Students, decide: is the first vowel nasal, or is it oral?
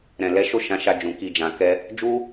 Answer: nasal